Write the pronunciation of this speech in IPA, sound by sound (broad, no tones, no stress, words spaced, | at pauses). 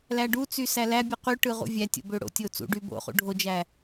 læɖut͡sy sælæbʲɯ qy ʈɯʁṵvʲætʲo̰ bøɽo̰tʲo t͡sṵɖy bo̰χṵ ɖʱod͡ʒæ